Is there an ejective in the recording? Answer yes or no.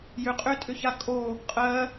yes